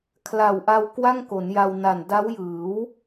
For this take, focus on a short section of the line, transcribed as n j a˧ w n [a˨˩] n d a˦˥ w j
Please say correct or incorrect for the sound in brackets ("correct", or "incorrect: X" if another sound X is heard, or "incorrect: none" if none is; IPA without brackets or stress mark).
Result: correct